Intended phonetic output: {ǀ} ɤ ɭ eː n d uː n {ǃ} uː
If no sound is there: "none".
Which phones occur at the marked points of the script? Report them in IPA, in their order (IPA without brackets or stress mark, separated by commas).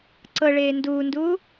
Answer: ǀ, d